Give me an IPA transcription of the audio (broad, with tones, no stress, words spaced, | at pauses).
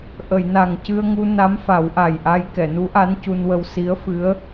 ʔə˨˩˨jna˨˩ŋcɨ˧ə̯ŋu˧ na˧˥mfa˨˩˦wʔa˨˩jʔa˧j kɛ˨˩˨nu˧˥ʔa˧˥n cu˧nwə˧w si˧˥ə̯fɨ˧˥ə̯